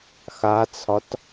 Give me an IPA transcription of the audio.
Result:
x a t͡sʰ ɒ t

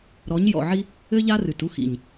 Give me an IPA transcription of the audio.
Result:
ɾ ɔ˨˦ ɲ j ɔ̰˨ ʕ i˦ | ɘ˦ ʎ a˦ r ɨ˨ t u˦ x ḭ˨ ɲ

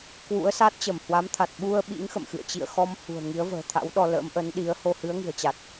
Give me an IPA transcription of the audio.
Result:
k w ṵ˧˥ ə̯ s a˦˥ t̚ t͡ɕ ə˧˩ m h w a˨˦ m t̪ʰ a˨˩ t̚ ɓ u˧ ə̯ ɓ ḭ˧˥ ŋ x ə̰˧˨ m x ɨ̰˧˨ ə̯ t͡ɕ ḭ˧˨ ə̯ x ɔ˧ m h ṳ˨˩ ə̯ ŋ i˨˦ ə̯ v ə̤ː˨˩ t̪ʰ a̰˧˥ w ɗ ɔ˧ l ə̰˧˥ m ʔ ə˨˦ n ɗ i˨˦ ə̯ h o˧ h ɨ˨˦ ə̯ ŋ ɨ̤˨˩ ə̯ t͡ɕ a˨˩ t̚

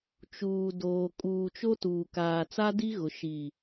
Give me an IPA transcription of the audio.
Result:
t͡ʃ uː˨ d oː˨ kʼ uː˨ t͡ʃ o˦ t uː˨ k aː˨ t͡s a˦ d i˦ ɣ ʊ˨ ʃ i˨

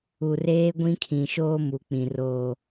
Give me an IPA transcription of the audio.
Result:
u˨ r eː˦ ɡʷ ĩ˦ kʰ ĩ˨ ʃ oː˦ m u˨ k͡p ĩ˨ r oː˨

